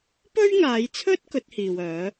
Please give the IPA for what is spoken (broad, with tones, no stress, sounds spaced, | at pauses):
p ɵ˥ ɥ ŋ aː˨˧ j t͡sʰ ɵ˥ t̚ k ɵ˨˥ t̚ h iː˨ w œː˨˥